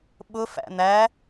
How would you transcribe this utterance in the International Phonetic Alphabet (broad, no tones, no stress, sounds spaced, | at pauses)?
ɓ ʊ f æ̰ n̪ æ